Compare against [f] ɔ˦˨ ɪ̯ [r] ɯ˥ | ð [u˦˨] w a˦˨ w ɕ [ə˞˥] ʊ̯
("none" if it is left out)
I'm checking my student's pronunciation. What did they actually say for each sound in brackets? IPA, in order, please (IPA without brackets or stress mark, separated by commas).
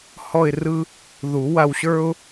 h, r, u˨˩˦, ə˞˥